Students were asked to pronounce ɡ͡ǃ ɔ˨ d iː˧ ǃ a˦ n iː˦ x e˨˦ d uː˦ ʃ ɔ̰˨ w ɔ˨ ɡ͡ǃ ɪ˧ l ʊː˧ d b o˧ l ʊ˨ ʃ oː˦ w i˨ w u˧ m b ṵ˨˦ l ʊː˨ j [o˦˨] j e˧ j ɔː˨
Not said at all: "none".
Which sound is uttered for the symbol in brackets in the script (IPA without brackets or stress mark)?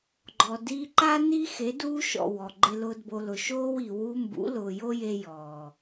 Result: o˦